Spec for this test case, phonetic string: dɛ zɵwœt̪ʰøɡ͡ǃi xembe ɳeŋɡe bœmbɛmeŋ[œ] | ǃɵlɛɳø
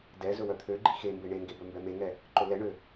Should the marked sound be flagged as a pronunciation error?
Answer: yes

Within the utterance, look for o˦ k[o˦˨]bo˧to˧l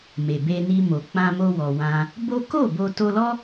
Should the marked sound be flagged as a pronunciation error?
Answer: no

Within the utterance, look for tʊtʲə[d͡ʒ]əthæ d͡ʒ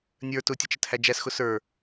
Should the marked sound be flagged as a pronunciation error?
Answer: yes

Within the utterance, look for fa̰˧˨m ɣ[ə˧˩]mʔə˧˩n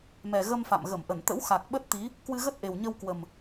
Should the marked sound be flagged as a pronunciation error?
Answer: no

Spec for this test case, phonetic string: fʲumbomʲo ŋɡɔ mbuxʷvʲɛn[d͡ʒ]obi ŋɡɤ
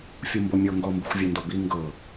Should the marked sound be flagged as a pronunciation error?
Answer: yes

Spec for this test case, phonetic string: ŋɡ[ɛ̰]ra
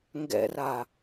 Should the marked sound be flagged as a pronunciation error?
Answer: no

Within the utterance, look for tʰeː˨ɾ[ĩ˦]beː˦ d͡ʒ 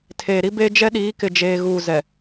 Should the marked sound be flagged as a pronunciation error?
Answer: yes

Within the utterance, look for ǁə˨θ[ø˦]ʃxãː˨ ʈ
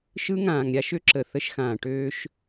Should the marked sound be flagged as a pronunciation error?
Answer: yes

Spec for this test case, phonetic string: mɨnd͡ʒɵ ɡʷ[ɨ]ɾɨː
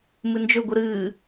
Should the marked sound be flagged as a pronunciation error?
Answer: no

